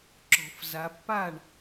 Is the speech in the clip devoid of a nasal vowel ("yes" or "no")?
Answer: yes